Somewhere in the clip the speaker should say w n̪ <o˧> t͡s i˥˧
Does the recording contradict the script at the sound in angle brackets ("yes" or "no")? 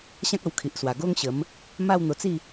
no